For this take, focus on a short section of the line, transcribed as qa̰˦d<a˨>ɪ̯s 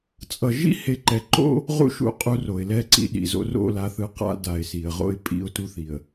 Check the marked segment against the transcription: correct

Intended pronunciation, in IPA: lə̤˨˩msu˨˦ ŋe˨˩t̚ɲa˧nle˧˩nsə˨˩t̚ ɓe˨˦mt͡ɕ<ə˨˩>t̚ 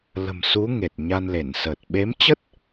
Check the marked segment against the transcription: incorrect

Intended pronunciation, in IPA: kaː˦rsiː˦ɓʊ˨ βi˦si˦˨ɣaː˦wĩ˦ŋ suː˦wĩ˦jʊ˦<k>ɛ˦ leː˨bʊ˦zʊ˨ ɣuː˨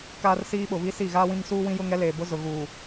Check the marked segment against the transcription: incorrect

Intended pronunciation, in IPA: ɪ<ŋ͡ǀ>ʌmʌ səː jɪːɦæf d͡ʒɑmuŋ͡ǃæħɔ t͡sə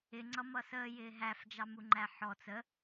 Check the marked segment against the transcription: correct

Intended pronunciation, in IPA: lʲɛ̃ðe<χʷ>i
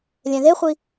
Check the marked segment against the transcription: correct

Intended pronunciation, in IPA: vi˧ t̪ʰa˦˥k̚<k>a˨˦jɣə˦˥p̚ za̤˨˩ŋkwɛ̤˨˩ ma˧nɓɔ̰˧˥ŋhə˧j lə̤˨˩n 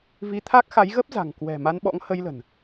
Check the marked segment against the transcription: incorrect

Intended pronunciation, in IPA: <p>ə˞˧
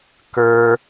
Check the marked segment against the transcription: incorrect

